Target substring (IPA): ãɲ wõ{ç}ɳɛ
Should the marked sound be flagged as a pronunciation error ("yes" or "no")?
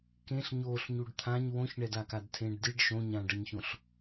no